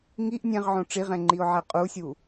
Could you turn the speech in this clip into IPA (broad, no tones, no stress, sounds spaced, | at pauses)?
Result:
ŋ i ʔ nʲ ɛ̃ ʁ ʕ õ ʈ͡ʂ i ʁ ɛ̃ ŋ͡ǃ i ʊ̯ ʕ ɛ qʼ u sʲ u